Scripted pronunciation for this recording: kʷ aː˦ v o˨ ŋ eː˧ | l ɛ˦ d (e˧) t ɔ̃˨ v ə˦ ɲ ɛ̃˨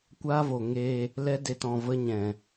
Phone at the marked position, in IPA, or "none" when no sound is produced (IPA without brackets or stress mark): e˧